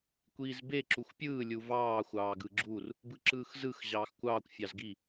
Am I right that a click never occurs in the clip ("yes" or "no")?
no